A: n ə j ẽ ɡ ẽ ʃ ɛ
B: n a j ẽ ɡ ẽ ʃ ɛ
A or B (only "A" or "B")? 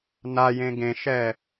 B